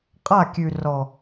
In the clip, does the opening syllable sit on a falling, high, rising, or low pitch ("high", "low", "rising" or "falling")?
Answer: falling